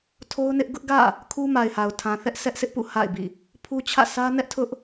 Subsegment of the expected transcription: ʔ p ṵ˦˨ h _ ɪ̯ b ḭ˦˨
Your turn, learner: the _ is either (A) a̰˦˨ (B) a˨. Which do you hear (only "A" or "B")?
A